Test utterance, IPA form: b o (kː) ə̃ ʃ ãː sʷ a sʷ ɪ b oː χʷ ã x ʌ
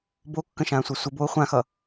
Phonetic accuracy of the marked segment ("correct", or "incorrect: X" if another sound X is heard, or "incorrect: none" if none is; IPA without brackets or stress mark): correct